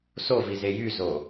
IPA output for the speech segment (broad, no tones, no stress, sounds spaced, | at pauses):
s o v i z e j y z o